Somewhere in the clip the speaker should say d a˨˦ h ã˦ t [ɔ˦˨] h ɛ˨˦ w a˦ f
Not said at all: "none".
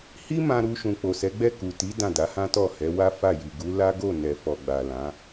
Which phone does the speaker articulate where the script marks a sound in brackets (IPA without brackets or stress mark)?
ɔ˦˨